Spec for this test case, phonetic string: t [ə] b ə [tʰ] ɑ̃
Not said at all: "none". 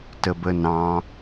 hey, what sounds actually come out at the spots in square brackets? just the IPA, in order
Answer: ə, n

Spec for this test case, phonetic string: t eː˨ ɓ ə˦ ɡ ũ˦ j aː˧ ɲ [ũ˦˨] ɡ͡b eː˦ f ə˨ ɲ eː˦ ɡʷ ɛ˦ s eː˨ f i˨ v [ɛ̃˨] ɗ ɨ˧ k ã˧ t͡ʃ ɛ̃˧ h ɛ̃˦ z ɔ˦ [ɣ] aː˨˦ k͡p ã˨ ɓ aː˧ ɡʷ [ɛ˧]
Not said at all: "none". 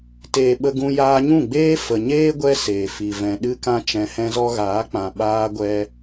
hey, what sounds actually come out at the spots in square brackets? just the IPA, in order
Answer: ũ˦˨, ɛ̃˨, ɣ, ɛ˧

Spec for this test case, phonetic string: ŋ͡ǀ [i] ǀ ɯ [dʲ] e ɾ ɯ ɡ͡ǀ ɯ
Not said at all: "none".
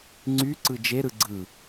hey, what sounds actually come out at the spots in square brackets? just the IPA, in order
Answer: y, d͡ʒ

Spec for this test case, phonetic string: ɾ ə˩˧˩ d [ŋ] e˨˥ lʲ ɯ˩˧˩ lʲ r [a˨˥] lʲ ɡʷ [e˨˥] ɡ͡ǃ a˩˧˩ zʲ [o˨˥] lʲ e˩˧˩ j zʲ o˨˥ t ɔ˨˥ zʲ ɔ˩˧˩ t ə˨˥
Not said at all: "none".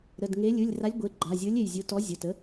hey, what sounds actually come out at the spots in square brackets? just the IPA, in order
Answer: ŋ, a˨˥, e˩˧˩, o˨˥

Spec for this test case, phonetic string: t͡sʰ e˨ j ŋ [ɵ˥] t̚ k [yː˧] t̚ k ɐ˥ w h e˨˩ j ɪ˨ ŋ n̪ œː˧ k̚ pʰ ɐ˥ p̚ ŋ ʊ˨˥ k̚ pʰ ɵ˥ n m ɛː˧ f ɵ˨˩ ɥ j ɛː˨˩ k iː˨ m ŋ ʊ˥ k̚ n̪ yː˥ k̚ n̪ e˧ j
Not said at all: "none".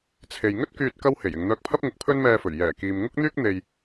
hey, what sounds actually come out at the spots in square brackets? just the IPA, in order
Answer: ɵ˥, yː˧

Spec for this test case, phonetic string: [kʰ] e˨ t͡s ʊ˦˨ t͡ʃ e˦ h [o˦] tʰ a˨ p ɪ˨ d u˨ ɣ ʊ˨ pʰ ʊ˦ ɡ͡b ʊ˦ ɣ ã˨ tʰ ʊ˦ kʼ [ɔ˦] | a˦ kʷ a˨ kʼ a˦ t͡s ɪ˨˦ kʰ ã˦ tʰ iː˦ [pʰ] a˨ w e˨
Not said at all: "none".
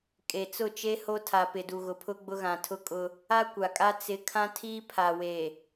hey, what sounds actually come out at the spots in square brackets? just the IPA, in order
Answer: kʼ, o˦, ʊ˦, pʰ

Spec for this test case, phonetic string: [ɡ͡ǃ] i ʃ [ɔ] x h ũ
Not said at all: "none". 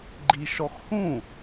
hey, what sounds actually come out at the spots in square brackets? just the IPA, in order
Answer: ɡ͡ǃ, ɔ

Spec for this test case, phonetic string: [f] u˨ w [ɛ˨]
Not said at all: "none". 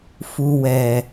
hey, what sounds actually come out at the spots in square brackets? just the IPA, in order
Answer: f, ɛ˨

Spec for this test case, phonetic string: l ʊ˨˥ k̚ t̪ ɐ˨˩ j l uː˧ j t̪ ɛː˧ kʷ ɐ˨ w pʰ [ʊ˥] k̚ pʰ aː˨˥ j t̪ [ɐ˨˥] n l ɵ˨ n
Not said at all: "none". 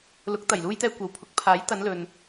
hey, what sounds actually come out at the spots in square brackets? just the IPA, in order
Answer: ʊ˨˥, ɐ˨˧

